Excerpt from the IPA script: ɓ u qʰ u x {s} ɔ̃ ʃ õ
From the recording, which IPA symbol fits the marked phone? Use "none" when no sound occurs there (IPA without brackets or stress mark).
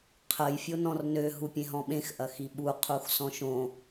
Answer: s